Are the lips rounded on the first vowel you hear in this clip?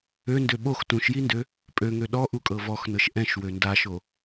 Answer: yes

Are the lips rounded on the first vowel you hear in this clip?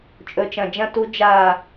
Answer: yes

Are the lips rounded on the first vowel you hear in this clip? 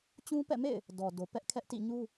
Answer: yes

